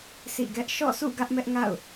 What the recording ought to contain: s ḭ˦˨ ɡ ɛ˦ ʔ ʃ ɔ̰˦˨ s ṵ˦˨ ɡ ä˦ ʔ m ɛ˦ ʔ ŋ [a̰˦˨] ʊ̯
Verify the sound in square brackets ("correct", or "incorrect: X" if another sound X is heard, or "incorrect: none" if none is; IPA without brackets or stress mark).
correct